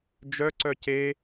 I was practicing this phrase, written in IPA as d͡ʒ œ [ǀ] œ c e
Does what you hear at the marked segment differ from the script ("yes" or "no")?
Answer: no